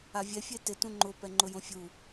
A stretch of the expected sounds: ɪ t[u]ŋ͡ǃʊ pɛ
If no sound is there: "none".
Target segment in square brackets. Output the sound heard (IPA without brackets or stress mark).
ũ